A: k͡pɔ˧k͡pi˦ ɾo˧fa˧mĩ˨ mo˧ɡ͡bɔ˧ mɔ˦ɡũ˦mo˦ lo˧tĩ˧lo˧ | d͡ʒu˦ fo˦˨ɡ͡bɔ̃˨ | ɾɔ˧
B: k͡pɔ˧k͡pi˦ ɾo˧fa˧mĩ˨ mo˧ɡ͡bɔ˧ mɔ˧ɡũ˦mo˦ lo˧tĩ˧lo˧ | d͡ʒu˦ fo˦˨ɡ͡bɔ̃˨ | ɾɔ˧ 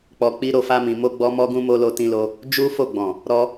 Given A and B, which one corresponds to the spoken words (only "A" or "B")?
A